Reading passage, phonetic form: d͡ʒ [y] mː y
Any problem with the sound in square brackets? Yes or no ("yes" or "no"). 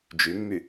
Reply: no